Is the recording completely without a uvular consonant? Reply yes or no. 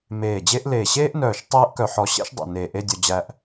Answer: yes